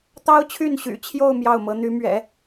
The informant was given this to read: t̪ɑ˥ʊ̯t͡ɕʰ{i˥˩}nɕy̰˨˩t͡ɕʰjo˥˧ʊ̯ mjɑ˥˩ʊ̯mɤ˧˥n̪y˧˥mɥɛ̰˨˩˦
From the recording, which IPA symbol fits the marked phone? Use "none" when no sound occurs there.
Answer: y˥˩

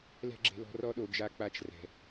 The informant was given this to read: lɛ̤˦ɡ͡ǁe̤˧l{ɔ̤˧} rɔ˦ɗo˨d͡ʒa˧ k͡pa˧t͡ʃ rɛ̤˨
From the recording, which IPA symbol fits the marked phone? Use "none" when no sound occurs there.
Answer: ɔ̤˧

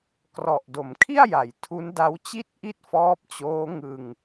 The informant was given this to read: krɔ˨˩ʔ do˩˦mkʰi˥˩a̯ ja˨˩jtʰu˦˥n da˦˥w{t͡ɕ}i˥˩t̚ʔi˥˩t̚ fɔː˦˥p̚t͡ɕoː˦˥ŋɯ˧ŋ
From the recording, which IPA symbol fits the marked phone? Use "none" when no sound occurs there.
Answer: t͡ɕ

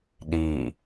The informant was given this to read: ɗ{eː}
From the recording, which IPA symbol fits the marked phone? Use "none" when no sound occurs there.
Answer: iː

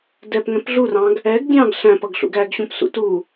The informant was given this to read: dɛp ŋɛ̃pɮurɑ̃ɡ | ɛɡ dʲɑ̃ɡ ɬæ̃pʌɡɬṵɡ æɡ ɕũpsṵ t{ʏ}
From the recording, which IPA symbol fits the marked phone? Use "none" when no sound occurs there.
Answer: u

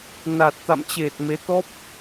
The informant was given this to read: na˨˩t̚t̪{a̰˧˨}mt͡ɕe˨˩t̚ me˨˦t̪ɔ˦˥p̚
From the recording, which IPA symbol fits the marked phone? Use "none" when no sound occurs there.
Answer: a̰˧˨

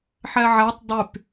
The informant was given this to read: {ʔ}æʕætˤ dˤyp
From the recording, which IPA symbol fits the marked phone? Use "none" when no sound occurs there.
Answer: ħ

